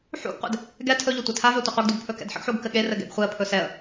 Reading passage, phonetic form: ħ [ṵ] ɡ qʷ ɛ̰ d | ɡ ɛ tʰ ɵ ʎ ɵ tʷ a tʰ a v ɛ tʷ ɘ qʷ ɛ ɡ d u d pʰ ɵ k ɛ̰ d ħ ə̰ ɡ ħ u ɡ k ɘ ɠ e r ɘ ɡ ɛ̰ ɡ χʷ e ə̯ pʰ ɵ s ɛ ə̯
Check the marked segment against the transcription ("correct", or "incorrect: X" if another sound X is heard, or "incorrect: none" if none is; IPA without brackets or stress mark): correct